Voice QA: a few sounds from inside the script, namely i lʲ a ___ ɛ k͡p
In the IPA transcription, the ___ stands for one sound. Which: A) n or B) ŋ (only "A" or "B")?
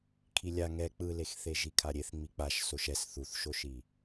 B